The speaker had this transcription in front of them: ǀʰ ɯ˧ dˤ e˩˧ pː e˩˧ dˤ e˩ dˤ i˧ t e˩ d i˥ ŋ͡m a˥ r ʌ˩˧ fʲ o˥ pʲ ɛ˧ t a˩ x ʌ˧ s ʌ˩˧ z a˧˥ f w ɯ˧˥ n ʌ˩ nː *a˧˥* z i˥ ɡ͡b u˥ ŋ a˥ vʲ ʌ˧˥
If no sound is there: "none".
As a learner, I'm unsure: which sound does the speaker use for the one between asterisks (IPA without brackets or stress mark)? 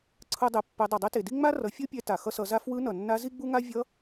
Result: a˧˥